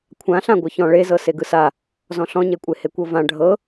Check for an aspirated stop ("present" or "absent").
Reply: present